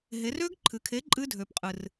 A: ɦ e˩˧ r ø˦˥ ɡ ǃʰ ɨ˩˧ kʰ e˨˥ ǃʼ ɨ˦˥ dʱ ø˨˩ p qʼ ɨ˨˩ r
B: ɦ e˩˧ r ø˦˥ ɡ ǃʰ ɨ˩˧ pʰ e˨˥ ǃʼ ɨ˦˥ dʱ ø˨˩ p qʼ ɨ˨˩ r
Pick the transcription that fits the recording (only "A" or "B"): A